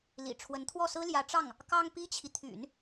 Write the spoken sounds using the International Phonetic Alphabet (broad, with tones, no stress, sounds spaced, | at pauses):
l ḭ˨˩ ʈ͡ʂʰ w ə˧˥ n t̪ʰ w ɔ˥˩ s ɹ̩˥ l j ä˧˥ ʈ͡ʂ ɑ˥˩ ŋ | k ɑ˥ ŋ p i˥ t͡ɕʰ i˨ t̪ʰ y̰˨˩˦ n